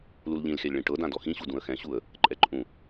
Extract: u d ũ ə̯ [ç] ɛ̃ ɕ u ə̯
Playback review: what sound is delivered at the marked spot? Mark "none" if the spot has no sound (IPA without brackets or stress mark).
x